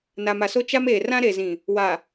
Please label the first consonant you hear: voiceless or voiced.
voiced